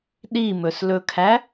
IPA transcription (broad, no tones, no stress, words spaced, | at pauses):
ɗimɵslɵkʰæ